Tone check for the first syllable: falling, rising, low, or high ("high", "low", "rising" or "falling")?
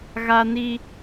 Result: high